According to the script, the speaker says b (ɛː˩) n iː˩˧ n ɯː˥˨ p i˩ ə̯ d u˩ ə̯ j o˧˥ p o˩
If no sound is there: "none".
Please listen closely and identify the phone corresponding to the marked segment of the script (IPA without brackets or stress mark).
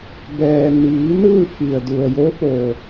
ɛː˩